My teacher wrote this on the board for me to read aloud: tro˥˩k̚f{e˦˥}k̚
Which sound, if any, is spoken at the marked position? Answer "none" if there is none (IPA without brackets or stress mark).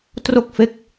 e˦˥